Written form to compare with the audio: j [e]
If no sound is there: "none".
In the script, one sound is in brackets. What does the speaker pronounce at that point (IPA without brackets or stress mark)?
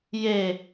e